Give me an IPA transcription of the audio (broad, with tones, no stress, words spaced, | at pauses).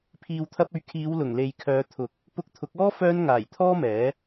pʰiː˨wt̪ʰɐ˧p̚ɵ˨˧ɥ kʰiː˨˧wlʊ˨˩ŋ le˨jkʰœː˨˧ t̪ʰʊ˨k̚ | pʊ˧k̚t̪ʰʊ˨˥k̚ɔː˥ fœː˧n ŋaː˨˩jt̪ʰɔː˥mɛː˨˥